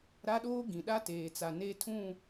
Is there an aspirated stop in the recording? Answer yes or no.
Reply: yes